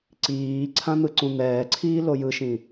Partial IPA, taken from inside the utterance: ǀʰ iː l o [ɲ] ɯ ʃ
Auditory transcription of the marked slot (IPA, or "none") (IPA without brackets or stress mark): j